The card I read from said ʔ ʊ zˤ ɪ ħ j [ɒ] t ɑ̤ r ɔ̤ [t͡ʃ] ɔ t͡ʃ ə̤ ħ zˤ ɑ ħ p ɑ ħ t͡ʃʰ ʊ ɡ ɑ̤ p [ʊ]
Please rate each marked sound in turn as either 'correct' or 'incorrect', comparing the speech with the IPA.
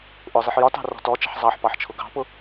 correct, incorrect: t, correct

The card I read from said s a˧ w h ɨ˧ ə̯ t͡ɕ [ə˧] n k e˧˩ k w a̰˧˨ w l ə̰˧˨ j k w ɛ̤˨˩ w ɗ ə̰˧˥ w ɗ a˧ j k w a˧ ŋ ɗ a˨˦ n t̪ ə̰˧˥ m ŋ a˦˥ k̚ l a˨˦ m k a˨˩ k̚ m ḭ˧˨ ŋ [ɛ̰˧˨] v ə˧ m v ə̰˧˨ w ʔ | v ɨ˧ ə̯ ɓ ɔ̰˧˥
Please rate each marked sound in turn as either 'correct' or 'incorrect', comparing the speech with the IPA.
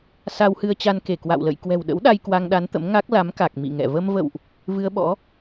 incorrect: a˧, correct

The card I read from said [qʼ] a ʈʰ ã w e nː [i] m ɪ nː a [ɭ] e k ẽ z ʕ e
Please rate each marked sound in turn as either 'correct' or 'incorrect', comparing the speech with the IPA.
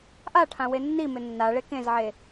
incorrect: ʔ, correct, correct

